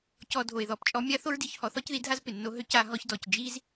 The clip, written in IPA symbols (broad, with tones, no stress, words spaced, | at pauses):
cɔ˧dʱo˨e̯ ðɔ˨pt͡ʃʼɔ˧mʲa˦ θo˦ɹdi˧çhɔ˨˦ θɔ˦cði˧dʱa˦z pɪ˨nːo˦ ɦø˧ca˧ ɦɔ˧çdɔ˨c d͡ʒi˦z